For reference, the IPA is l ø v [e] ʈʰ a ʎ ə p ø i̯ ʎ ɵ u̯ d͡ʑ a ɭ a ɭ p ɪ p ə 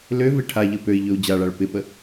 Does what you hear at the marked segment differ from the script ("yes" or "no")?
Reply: no